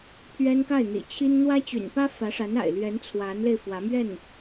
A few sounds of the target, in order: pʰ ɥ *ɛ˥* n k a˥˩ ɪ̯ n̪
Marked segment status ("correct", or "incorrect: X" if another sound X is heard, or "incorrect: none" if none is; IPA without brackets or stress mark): correct